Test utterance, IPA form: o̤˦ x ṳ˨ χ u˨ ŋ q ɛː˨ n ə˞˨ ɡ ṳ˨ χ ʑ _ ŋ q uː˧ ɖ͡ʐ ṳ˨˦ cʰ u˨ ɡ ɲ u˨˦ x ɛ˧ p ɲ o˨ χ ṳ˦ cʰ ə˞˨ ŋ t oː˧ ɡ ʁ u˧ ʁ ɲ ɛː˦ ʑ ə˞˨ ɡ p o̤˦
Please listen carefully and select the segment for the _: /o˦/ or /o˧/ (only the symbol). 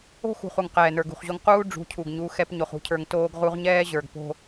o˧